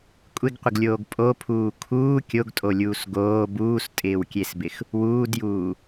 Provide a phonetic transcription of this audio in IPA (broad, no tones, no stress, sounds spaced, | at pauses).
kʷʼ ɪ ɡ qʷ ɪ ɡ lʲ oː ɡ pʼ o pʰ uː kʰ uː kʲ o ɡ tʼ o lʲ uː s ɡ oː b uː s tʼ ɪː w kʲ e s b ɪ x | w uː d j uː